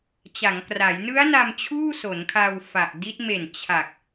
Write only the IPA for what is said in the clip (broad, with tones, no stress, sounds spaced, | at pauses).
t͡ɕ a˩˦ ŋ k r a˩˦ j n ɯ˦˥ a̯ n a˧ m t͡ɕʰ uː˥˩ s o˩˦ n kʰ a˧ w f a˨˩ ʔ d i˦˥ t̚ m e˨˩ n t͡ɕʰ a˨˩ k̚